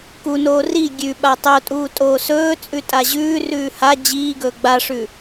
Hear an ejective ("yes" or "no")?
yes